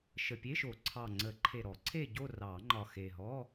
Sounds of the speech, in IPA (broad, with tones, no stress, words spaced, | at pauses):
ʃə˨˩pʲe˧˥˧ʃo˨˩˦ ǀʰɑ˨˩ŋ͡ǀə˨˩˦ ǃʰe˨˩ɾɔ˨˩˦ǀʰe˦˨ɟo˦˨ rɑ˨˩˦ŋ͡ǃɒ˨˩ xe˨˩ɦɔ˧˥˧